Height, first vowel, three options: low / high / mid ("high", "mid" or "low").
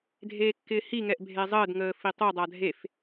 mid